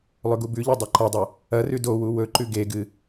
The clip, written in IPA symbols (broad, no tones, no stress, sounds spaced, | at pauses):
lˠ ɵ ɡ u b ʉ ʎ ɵ dˤ e ǃ ɐ dˤ ɐ | ɐ r ʉ d o w u w ɵ ǃ ʉ ɡ e ɡ ɨ